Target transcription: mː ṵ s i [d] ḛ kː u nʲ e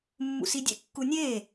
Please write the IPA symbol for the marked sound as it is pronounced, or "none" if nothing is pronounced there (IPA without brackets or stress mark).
dʲ